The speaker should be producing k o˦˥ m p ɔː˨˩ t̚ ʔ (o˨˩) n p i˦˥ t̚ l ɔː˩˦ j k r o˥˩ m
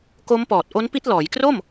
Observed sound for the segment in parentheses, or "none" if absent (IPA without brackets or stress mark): o˦˥